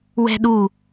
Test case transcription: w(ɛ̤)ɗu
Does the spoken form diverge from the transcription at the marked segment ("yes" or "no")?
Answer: no